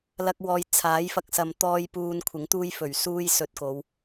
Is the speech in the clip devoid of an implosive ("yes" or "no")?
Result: yes